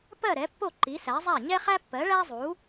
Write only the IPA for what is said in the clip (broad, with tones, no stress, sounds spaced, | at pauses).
p ɜ˥˨ ɾ ɛ˨˥ pː o˥˨ ǃ i˨˥ s æ˨˥ zˤ æ˥˨ ɲ ɛ˥ χ æ˥ pː ɜ˨˥ ɭ æ˥ zˤ u˨˥